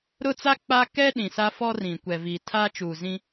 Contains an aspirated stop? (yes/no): yes